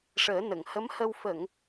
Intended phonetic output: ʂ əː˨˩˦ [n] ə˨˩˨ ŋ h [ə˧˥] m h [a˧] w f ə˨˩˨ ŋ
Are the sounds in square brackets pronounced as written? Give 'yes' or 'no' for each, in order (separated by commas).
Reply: yes, yes, no